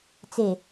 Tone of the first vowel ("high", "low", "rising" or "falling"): low